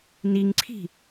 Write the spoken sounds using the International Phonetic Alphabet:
niŋǀʰi̤

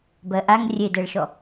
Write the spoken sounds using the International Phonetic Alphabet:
bɜʔaŋ rʲedɛɭʃɔ

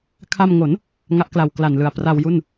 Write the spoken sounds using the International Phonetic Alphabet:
kʰa˧mŋo˩˦n | ŋa˦˥ʔkla˨˩w kla˨˩nlɯ˨˩a̯ pra˧wju˥˩n

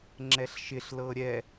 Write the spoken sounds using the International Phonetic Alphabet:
ŋ͡ǁɛɬʃɪɬ lɤːɾʲɛ

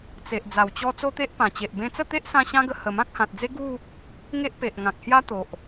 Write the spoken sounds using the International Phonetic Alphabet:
t͡se˨ʔ d͡za˨˩wt͡ɕɔ˧ t͡so˦t̪e˦ʔpã˨˩t͡ɕe˨ʔ bẽ˧t͡sə˥˧t̪e˦ʔsã˧ ɕã˦ɡə˧ hə˨˩mã˦k̚hã˨t̚d͡ze˦ ɡu˥˧ | ŋe˦ʔpe˨ʔŋã˨k̚ hja˦t̪o˨ʔ

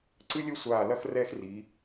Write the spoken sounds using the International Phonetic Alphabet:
ǀɨ˥lʲɘ˥ sʷaː˧˩lɐ˥x rɛ˥xri˩˧

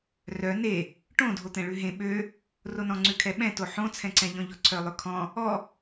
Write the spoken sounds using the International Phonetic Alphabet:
rœ ne | ʈõdʱot̪ɛ̃ ɭʉɦẽ ɓø | ronɔ̃ŋ͡ǀʉ kʰɛɓɛ̃to ħõt͡sʰɛ̃ǀɛ̃ʎɔ̃ ʎɔǀʰœlˠøkʰɔ̃ | ɔ

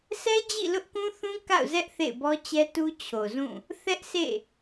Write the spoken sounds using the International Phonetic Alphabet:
sɛ˦d͡ʑḭ˦˨ lʊ˦ʔkũ˦θũ˦ ka̰˦˨ʊ̯zɛ˦ʔ θḛ˦˨ɪ̯bɔ˦t͡ɕɛ˦tu˦ t͡ɕʰo˨zũ˦˨ | θɛ˦ʔsḛ˦˨

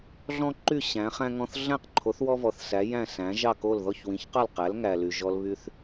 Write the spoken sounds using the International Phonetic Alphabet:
ɮɔ̃˥ǃy˥˩ ɕæ̃˩˥χæ̃˥ ŋɔ̃˧θ ɮæ̃˥˩qǃʰo˩˥θ wɔ˥vɔ˩θ sæ˩˥jæ̃˥˩ sæ̃˩˥ʒɑ˥˩ko˥˩l ðɔ˥˩çwĩ˩˥çqɑ˥˩l qæ˩˥lŋæ˩ly˩ ʒɔ˧lβy˧θ

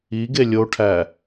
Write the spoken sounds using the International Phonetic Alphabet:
iɡe lʲoʈʰæ

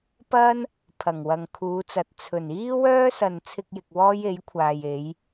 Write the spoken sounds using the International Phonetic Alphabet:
pɐ˥n | pʰɐ˨˩ŋwɐ˨ŋkʰuː˨˧t͡sɐ˨t̚ t͡sʰɵ˨˩n iː˥wœː˥sɐ˨n t͡sʰɪ˧k̚jɪ˨k̚ wɔː˥je˨˥jkʷʰaː˨j e˨˧j

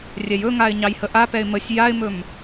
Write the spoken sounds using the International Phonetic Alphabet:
rʲɛjɵŋaɪ̯ ɲɑjhəʔapɛɪ̯ məsʲ jaɪ̯mɵm

